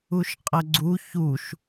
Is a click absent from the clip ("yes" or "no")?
no